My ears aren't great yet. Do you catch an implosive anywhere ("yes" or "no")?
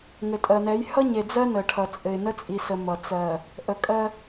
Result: no